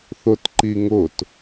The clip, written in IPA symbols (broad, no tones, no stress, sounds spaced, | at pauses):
θ ʊ t ǃ i ŋ ʊ t